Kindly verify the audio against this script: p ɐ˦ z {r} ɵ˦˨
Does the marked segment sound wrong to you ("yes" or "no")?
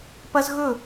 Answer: yes